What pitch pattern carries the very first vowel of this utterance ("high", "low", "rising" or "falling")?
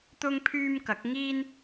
high